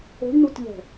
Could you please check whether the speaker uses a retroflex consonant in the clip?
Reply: yes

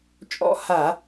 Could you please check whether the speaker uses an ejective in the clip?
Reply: yes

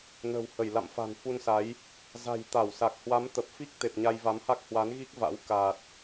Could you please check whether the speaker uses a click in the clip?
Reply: no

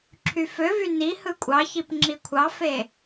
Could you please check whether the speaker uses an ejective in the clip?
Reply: yes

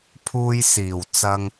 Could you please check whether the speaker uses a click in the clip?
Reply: no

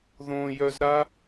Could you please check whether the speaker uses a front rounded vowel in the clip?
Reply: yes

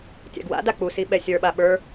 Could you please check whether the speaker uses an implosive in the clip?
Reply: yes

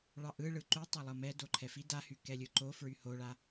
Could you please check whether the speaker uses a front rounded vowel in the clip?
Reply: yes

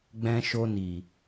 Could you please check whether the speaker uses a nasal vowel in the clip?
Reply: yes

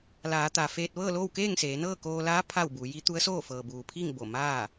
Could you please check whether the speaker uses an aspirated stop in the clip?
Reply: yes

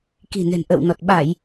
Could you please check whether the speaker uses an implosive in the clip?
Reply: yes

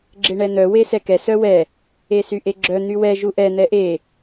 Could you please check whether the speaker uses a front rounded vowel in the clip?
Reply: yes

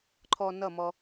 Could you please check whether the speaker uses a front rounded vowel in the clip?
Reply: no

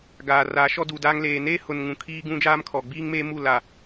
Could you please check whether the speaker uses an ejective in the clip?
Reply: no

